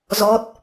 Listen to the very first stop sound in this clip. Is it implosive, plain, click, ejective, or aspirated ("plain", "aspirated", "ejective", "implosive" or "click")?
plain